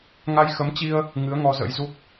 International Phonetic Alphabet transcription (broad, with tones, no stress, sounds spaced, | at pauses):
ŋ a˧ j x ə˨˦ m t͡ɕ i˧ ə̯ | ŋ ɨ˨˦ ə̯ ŋ ɔ˧ z ə̰˧˥ j z u˦˥ k̚